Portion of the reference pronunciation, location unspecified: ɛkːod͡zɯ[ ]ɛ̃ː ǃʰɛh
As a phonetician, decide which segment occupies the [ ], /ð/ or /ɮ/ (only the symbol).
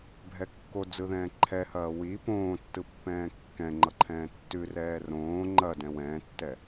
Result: ð